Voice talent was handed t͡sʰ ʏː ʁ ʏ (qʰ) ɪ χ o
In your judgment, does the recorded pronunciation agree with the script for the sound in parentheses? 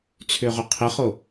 yes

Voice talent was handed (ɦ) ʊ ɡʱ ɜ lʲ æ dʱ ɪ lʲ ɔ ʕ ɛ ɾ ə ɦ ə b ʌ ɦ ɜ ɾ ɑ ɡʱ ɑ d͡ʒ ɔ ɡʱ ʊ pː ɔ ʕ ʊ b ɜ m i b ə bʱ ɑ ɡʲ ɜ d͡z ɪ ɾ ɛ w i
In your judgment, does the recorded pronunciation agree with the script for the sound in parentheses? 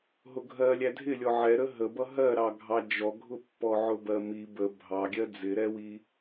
yes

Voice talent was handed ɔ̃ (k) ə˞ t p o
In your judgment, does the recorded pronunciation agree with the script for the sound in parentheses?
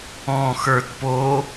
no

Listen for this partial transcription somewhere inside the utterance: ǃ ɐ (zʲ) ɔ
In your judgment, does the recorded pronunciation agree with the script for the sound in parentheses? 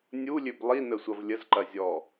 yes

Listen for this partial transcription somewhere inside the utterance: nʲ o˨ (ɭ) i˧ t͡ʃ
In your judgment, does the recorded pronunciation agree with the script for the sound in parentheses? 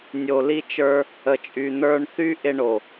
no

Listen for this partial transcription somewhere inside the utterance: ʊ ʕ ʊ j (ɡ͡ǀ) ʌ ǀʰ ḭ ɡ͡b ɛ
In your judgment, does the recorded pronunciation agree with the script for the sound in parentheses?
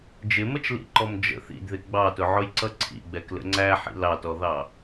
no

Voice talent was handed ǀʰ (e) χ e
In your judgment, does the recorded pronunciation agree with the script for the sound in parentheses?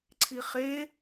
no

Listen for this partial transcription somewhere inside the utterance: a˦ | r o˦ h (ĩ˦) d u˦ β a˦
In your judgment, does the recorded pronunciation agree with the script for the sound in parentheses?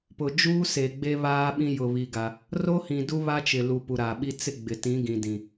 no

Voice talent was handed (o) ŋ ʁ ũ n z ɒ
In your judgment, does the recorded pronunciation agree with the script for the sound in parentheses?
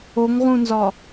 yes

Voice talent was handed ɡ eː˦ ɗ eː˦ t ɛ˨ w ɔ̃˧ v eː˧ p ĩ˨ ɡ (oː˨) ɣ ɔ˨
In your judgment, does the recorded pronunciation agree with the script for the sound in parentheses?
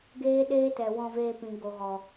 no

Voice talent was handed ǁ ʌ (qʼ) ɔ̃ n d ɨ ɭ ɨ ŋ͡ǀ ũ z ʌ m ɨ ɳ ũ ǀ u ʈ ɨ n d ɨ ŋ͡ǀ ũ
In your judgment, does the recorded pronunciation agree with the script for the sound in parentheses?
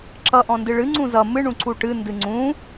no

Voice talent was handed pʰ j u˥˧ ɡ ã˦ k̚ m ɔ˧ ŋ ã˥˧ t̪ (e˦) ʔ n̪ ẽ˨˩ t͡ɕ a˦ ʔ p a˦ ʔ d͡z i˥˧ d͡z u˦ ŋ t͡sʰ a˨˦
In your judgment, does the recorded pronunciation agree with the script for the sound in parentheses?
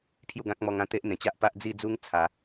yes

